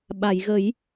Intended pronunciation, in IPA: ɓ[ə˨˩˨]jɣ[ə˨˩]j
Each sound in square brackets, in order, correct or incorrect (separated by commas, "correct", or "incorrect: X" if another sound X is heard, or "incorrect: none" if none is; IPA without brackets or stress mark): incorrect: a˨˩˨, incorrect: ə˨˩˦